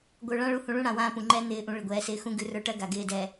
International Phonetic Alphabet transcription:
ɡʷə˞˨ ɭã˦ɭu˨˦hũ˨ɭũ˦ ɽã˨wãː˦pũ˨ ŋ͡ǃɛ˦ n̪ɪː˨ʔũ˨ ɭɪ˨ɡʷɛː˨sɪː˦xũ˦ ɡʉ˨rə˞˦ʈɜ˦ ɡa˨ɡɪː˦˨dɛ˨

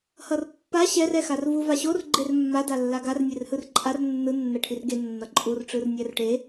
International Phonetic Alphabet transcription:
hʌrpːa ɕɛr ɛxarvu vaɕor ɡ͡ǃermːa dalːaɡar nʲerhɯrǃʼar nːɯ nːɛʈʰirɡe nːʌǃʼur ʈ͡ʂɯrnʲɛrʈe

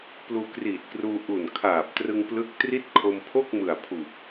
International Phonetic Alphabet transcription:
pluː˧kriː˨˩t̚kruː˧ ʔu˨˩nkʰaː˨˩p̚trɯ˧ŋ plɯ˥˩k̚ tri˥˩t̚ kʰo˧mpʰo˥˩k̚mɯ˨˩a̯ pʰu˨˩k̚

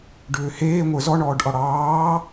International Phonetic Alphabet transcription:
ɖʏːheː ŋʷə˞zɔ ɳɔːɖʔɔɽɑː

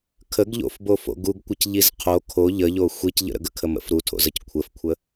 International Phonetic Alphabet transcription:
kʰəɡʎo̰fbofo̰ ɡuɡkʷɘcʎiz qʰo kʰo ʎəʎo xʷicʎə̰ɾə̰ ɡəkʰəmə̰f ɾutʰo̰zəc kʷʰəfkʷʰə

